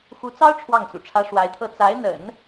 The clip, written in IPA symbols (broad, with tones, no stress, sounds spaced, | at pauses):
x u˧˥ t͡s ɑ˥ ʊ̯ ʈ͡ʂʰ w ɑ˥˩ ŋ t͡s ṵ˨˩ ʈ͡ʂʰ ä˥ ʂ w a˧˥ ɪ̯ t̪ʰ ɤ˥˩ t͡s a˧˥ ɪ̯ n̪ ə̰˨˩˦ n